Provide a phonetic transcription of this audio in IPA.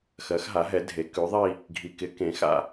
x ɜ˨˥ x ɦ a˨˥ ɦ ɛ˨˥ dʱ e˨˥ k ʉ˨˥ ðˤ i˥˧ | ɡʱ i˨˩ k ɪ˨˥ k ẽ˨˥ x a̰˥˧

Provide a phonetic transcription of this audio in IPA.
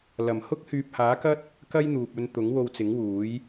l ɐ˨˩ m h ʊ˥ k̚ h yː˨ p̚ h aː˨˥ k ɐ˥ t̚ | k ɐ˥ j n̪ uː˨ p̚ ɵ˧ n t̪ ʊ˨˥ ŋ w o˧ w t͡s ɪ˨˥ ŋ w uː˨˥ j

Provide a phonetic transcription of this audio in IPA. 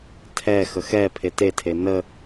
tʰ ɛ x ə x ɛ pʰ e t e tʰ e n ə

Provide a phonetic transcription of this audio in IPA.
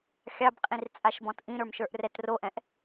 xʲ ɑ b qʼ ĩ r t͡sʼ a ʃ b ɔ̃ t ʔ ĩ ɾ ə˞ m ʃ ə˞ ʔ r ɛ t r o ʔ ɛ̃ ʔ

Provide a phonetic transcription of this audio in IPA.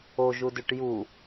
o ʒ u d ʉ ʈ j u

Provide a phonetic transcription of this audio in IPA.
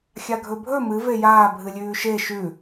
xʲ a ɡʱ ɵ bʱ ɵ m ɨ v e j aː bʱ ɨ lʲ ʉː ʃ e ʃ ʉ

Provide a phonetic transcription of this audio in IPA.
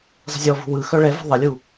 zˤ ə̤ zʲ ɔ v ṳ w ɯ x œ ɭ ɛ v ṳ ðˤ ə lʲ u

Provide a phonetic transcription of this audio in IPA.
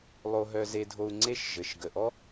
lˠ o˧ ɦ œ˧ z e˧ dʱ o˧ u̯ ŋ͡ǀ e˦˨ ʃ ʒ ɘ˨ ʃ ɡ ə˨ ʔ ɔ˦

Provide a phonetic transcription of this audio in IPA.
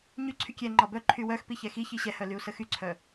ɲ y ǀʰ y kʲ ɛ ŋ͡ǃ ɒ b œ ǃʰ y w œ x p i ç ɛ x i ç i ɕ ɛ h œ l y u̯ s ə x y ǀʰ œ

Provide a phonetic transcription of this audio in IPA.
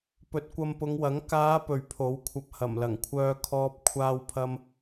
p ɵ˨ t̚ kʷ ɐ˧ m p ʊ˨˧ ŋ w ɐ˨˥ ŋ k aː˨˧ p ɵ˨ ɥ pʰ o˨˥ w kʷʰ ɐ˧ p̚ h ɐ˨˩ m l ɐ˨˩ ŋ kʷʰ œː˥ kʰ ɔː˥ p̚ kʷʰ aː˥ w pʰ ɐ˥ m

